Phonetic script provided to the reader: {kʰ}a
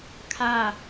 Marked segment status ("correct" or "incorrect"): correct